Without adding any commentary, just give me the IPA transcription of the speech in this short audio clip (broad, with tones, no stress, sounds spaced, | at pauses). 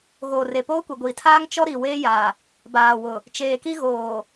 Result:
ɣ oː˨ r e˨ p oː˦ kʷ e˨ ɡʷ iː˨ tʰ aː˦ ŋ t͡ʃ ɔ˦ ɾ i˨ w eː˦ j aː˨ | b aː˨ w ʊ˨ | t͡ʃ eː˨ k i˦ ɣ oː˨